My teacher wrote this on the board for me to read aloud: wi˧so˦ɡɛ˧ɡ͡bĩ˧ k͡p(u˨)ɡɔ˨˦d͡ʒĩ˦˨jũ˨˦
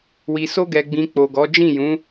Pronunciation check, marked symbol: incorrect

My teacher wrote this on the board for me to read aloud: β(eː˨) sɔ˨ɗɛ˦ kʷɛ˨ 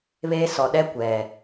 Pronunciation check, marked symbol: incorrect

